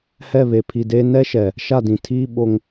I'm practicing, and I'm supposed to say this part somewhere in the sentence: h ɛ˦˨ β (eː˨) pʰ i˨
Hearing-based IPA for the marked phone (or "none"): e˨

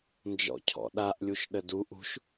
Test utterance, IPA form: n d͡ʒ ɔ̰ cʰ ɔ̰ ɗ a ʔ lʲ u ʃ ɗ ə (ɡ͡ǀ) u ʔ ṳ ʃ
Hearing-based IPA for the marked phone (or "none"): d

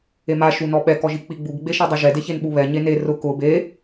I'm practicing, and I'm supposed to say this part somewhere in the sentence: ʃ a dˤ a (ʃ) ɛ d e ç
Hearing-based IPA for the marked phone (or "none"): ʒ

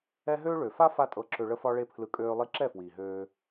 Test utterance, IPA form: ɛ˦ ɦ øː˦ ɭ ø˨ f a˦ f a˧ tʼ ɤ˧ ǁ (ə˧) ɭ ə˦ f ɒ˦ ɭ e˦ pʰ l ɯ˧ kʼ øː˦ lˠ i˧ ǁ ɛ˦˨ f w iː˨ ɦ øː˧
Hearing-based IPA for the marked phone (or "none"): ø˧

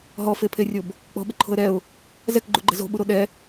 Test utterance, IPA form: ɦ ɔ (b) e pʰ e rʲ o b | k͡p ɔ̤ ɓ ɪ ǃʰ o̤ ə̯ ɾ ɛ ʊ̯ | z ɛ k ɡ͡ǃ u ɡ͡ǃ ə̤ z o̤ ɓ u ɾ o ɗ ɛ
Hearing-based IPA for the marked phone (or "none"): f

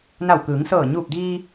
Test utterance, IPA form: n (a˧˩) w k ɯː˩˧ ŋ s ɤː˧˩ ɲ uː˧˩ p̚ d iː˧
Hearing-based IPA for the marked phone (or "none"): a˧˩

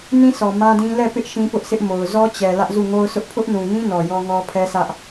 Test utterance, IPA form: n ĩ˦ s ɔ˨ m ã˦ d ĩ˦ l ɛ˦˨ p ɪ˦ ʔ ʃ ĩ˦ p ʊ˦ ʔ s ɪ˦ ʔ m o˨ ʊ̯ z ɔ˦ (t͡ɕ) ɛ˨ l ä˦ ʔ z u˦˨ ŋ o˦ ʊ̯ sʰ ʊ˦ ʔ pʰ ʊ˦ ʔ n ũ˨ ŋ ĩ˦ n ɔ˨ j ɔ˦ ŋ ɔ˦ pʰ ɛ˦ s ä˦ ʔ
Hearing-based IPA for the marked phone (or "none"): t͡ɕ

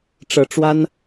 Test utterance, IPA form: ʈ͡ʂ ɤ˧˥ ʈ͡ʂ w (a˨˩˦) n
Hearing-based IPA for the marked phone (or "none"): a˥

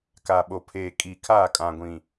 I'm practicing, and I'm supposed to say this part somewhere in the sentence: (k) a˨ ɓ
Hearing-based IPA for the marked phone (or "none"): k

